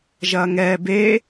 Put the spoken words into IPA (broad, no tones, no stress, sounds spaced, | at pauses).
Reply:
ʒ ɐ ŋ ɛ b e